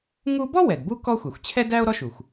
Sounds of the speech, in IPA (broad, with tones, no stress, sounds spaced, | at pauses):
ŋ u˥ b ɔ˥ w ɛ˩ d b u˥ k ɔ˥ xʷ ɛ˩ xʷ t͡ɕʰ ɛ˥ d æ˥ o̯ ɾ ɔ˥ ʃ u˩ xʷ